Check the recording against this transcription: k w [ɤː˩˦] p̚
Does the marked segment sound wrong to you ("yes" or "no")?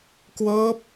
yes